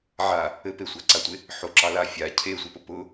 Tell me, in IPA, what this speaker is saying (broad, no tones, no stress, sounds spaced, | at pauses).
ʕ a | ɘ p e sʷ a ǀ a tʷ e | ħ o ǁ ɑ l a fʲ a cʰ e sʷ ɘ p ʊ p ʊ